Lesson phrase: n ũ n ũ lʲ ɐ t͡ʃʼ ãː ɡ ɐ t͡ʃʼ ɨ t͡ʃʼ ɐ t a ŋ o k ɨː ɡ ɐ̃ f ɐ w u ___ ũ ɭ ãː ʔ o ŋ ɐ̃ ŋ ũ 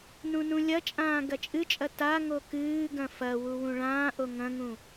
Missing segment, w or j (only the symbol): w